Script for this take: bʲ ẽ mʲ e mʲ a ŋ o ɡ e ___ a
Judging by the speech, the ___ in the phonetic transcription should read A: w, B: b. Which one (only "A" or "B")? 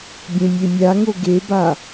B